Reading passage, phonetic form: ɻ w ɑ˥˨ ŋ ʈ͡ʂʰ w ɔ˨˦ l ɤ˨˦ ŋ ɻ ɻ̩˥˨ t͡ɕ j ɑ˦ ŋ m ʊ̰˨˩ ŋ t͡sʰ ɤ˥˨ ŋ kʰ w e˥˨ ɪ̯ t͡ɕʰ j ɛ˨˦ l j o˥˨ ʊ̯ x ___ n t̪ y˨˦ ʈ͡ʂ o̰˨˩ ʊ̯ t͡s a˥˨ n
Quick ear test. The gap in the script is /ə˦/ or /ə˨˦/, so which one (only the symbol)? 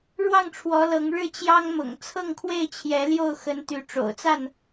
ə˨˦